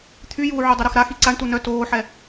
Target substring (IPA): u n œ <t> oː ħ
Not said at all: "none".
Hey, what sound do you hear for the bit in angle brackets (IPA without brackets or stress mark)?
t